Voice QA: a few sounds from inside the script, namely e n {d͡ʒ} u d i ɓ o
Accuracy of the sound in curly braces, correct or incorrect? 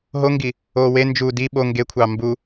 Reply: correct